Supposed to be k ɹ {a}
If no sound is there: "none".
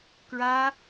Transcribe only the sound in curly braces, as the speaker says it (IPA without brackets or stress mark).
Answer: a